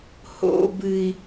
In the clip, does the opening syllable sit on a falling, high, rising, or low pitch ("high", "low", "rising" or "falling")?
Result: high